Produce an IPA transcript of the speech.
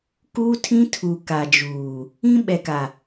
k uː˦ tʰ ĩ˦ tʰ uː˨ k a˨ d͡ʒ uː˨ | ĩ˦ ɓ ɛ˨ k a˨

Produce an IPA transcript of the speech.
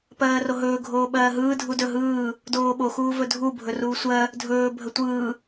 p ɜː r o ɦ ɵː ɡʱ oː ɓ ɜː ɦ ɯː dʱ u d ɵ ɦ ɯː | d oː ɓ o x uː v ɵ dʱ u bʱ ɵ r uː sʷ ɜ | dʱ ɵː bʱ ə tʷ ɯː

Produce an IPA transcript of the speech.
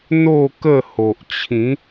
n̪ o˥˧ k ə˥˧ h o˨ ʔ t͡ɕʰ ĩ˨˦

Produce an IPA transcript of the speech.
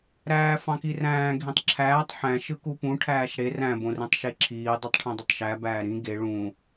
ɾ æː f ɑ̃ k i r æ̃ː ɡʱ ĩ tˤ ǁʰ æː tˤ ħ æ̃ ʃ ɯ k u p ũ ʈʰ æː ʃ ɽ e r æ̃ b õ r ĩ tˤ ʃ e ǁʰ iː dˤ u tˤ ʈʰ ẽ dˤ ɯ tˤ ʃ æ b æː ɾ ĩ ɡ e ɭ ũ

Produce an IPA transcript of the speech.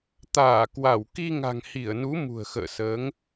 t̪ aː˧˩ k w a˧˩ w k i˧ ŋ a̤˨˩ ŋ h i˧˩ ə̯ n u˨˦ m ṳ˨˩ ə̯ x ə̰ː˧˨ s əː˨˦ ŋ

